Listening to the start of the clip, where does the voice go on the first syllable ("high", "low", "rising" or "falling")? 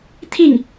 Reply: falling